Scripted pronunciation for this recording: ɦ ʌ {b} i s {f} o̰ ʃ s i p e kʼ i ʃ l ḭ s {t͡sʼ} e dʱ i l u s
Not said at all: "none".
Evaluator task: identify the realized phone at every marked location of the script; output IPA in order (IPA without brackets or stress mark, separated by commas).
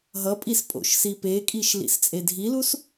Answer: pʼ, pʼ, t͡sʼ